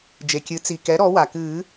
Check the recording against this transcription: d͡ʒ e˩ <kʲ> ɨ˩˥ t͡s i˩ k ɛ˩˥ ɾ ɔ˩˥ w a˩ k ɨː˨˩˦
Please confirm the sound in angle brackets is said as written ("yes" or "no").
yes